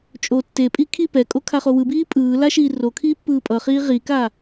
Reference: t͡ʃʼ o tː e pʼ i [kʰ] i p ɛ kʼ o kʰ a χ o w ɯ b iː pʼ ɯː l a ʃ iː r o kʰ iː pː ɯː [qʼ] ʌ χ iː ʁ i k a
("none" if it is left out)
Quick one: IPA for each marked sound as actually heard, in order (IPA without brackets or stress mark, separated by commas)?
kʰ, pʼ